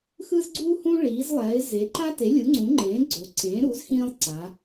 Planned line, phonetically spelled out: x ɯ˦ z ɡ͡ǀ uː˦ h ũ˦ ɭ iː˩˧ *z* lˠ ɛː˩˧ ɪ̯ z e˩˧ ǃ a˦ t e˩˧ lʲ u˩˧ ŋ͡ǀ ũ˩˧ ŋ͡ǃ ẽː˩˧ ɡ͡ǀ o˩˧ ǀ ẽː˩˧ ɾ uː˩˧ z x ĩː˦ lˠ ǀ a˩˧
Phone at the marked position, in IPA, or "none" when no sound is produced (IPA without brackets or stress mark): z